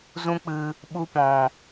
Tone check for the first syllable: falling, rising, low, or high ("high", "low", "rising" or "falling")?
high